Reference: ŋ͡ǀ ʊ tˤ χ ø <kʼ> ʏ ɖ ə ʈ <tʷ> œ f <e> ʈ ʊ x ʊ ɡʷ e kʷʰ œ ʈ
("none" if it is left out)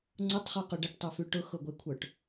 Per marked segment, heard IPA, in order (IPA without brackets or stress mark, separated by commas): q, tˤ, y